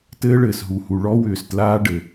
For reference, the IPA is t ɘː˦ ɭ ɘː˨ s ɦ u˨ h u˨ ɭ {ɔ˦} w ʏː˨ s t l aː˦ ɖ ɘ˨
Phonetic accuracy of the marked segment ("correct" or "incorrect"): correct